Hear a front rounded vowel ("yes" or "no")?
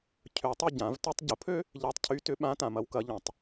yes